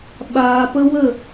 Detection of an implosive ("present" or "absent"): present